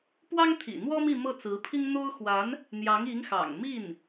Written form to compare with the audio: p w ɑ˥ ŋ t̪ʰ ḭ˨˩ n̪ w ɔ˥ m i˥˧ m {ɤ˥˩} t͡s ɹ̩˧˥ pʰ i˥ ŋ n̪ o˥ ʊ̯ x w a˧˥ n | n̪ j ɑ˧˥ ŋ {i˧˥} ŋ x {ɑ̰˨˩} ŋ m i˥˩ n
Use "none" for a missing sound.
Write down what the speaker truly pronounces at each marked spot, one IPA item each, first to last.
ɤ˥˩, i˧˥, ɑ̰˨˩

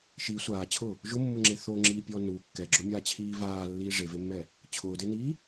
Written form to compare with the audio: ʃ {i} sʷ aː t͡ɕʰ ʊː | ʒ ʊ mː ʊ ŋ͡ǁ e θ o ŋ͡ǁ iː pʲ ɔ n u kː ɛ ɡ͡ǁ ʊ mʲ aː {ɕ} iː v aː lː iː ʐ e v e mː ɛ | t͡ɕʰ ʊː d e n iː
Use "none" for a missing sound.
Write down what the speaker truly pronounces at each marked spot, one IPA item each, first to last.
i, t͡ɕʰ

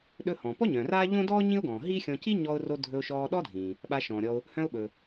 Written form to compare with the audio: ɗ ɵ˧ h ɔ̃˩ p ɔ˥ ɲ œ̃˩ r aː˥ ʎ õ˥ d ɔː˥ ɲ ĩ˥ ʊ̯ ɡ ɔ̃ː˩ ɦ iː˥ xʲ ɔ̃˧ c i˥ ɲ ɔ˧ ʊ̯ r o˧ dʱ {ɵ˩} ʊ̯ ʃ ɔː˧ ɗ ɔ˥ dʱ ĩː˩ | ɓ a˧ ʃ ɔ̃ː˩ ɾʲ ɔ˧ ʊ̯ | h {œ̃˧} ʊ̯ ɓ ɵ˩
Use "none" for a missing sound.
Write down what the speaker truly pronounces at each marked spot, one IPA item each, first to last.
ɵ˧, œ̃˧

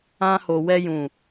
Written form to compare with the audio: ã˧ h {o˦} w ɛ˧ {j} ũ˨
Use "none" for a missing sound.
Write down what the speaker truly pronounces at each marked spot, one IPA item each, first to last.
o˨, j

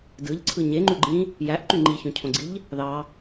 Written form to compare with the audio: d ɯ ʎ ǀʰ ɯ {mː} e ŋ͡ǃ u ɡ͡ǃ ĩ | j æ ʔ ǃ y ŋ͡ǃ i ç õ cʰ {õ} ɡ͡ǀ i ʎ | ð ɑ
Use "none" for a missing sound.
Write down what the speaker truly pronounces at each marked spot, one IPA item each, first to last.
ɲ, õ

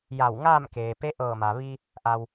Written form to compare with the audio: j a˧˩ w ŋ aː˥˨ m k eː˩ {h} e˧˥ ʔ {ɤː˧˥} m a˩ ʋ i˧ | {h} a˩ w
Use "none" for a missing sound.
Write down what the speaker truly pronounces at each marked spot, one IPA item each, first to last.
p, ɤː˧˩, ʔ

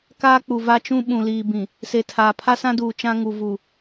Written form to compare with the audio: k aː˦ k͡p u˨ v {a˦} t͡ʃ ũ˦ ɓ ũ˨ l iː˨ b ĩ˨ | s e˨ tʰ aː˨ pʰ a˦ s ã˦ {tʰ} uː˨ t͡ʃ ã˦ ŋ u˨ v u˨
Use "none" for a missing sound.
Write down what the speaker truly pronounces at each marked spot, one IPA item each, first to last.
a˦, d

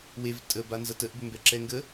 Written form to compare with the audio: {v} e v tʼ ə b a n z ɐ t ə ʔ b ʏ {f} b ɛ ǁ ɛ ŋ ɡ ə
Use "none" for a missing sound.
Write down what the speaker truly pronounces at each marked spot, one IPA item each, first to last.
w, m

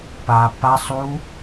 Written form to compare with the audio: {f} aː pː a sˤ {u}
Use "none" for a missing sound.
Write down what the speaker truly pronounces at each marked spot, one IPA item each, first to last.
p, u

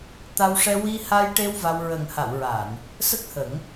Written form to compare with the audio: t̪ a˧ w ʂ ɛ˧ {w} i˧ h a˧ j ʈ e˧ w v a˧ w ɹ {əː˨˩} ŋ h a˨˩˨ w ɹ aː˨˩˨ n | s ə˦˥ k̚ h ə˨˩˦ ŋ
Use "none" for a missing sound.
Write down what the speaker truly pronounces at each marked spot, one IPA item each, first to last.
w, əː˨˩

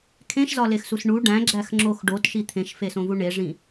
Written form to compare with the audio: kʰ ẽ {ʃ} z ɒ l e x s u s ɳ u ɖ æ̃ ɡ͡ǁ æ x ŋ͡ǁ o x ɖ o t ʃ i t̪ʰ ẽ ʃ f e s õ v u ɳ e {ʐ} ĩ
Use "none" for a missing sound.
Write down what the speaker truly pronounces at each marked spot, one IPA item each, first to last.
ʃ, ʐ

